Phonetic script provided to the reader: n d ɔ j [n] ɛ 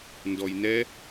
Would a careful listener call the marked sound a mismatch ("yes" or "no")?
no